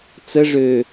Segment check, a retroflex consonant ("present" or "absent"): present